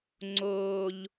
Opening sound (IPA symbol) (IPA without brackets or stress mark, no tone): ŋ͡ǀ